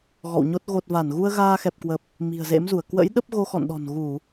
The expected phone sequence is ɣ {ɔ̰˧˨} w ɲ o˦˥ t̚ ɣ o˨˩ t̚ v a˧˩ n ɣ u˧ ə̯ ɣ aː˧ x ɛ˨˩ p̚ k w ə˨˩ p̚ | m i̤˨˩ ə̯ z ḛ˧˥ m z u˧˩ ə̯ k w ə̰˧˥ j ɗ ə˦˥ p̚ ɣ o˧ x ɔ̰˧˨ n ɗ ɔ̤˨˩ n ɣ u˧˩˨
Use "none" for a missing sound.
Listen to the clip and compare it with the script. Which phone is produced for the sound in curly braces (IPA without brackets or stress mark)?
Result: ɔ̰˧˨